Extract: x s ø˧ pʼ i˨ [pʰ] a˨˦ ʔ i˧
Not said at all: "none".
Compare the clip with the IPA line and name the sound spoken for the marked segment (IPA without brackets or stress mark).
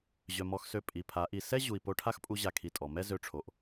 pʰ